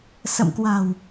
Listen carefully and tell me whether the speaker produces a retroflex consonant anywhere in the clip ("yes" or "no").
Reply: no